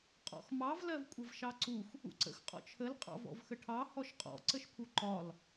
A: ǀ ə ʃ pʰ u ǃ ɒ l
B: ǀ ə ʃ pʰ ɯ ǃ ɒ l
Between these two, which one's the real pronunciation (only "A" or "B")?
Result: A